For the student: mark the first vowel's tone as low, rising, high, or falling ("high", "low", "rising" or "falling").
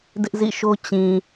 high